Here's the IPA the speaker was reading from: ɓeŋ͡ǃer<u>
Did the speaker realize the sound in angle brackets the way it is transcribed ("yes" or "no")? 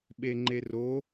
no